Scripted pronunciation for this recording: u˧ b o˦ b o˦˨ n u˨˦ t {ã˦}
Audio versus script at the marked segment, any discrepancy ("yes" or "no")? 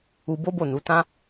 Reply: no